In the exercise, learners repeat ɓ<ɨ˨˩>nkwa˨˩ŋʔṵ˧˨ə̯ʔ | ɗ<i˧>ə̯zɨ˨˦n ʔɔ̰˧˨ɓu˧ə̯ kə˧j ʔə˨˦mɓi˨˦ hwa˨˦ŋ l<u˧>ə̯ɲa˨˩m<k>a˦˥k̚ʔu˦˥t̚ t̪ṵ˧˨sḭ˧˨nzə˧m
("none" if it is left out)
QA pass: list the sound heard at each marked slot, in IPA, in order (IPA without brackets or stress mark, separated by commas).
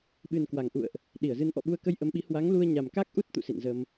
ɨ˨˩, i˧˩, u˧, k